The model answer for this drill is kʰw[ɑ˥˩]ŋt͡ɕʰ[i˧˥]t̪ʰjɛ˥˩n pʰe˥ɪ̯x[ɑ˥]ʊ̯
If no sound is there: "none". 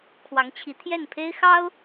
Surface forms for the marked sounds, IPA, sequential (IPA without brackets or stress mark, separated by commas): ɑ˧˥, i˧˥, ɑ˥